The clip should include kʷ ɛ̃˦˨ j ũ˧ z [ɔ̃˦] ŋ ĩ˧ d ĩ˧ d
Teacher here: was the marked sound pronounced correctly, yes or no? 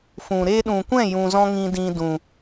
yes